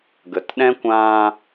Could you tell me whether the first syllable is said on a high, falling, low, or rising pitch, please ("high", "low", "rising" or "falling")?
low